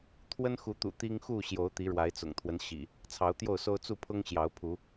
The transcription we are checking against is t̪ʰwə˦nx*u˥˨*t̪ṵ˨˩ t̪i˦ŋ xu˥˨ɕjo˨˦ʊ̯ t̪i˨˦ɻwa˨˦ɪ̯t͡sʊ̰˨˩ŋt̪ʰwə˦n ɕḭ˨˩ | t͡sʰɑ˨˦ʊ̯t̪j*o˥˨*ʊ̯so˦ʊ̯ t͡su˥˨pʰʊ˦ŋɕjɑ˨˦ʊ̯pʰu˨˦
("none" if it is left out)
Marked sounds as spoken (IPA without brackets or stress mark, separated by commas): u˨˦, o˥˨